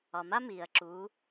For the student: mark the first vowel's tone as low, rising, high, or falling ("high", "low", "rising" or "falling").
low